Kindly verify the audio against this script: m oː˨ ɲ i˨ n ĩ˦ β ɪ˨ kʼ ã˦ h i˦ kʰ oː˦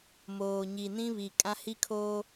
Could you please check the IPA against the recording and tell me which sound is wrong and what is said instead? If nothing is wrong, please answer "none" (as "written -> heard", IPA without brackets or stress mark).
ɪ˨ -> i˨